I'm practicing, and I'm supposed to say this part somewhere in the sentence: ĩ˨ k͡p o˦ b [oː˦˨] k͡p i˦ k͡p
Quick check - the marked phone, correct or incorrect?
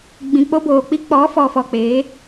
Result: incorrect